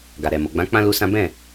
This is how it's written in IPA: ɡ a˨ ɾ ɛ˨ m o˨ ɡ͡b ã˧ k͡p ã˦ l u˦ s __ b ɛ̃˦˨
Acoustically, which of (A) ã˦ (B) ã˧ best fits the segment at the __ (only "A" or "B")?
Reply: A